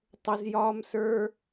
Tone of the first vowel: low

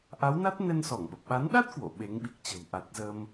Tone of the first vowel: rising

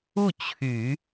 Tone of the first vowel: falling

